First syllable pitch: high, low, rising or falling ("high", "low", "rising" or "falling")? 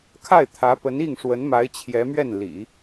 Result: falling